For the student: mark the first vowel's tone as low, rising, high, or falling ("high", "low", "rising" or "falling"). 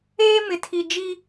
high